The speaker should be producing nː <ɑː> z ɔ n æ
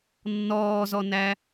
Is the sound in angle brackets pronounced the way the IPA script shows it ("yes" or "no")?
no